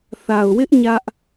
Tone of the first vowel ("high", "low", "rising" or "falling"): low